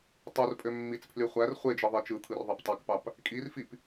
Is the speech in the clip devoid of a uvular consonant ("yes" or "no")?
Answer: no